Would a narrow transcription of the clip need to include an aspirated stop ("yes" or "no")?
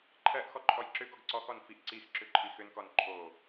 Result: yes